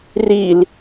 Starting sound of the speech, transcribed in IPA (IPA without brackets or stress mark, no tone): r